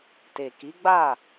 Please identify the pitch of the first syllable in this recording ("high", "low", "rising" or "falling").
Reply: low